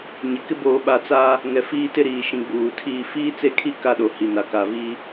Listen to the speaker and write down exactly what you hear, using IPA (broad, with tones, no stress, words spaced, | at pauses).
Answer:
ɲɪ˨kɪ˦ boː˨ɓa˨ t͡saː˦ | ŋɛ˨fiː˦tɪ˦ ɾiː˨ʃĩ˨ ɡ͡buː˨ tʰiː˦ fiː˦t͡se˦˨kʰi˦˨ ka˦ɗo˨ hi˨na˨ ka˨viː˦